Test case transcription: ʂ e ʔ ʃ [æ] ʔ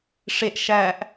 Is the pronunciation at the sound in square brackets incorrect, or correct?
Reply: correct